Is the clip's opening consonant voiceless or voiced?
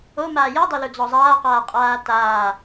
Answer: voiced